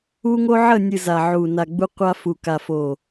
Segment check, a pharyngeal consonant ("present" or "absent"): present